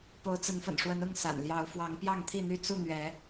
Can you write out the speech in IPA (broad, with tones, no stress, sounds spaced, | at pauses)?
p o˨˦ ʊ̯ t͡s ə˨˦ n f ə̰˨˩ n ʂ w ə˨˦ n ʊ˥˨ ŋ s a̰˨˩ n l j ɑ˨˦ ʊ̯ f w ɑ˨˦ ŋ p j ɑ˥˨ ŋ t̪ʰ i˥˨ n̪ y˥˨ t͡s u˥˨ n̪ ɥ ɛ˨˦